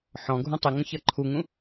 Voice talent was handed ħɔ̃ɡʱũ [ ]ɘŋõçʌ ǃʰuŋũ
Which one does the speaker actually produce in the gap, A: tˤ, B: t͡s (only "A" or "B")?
A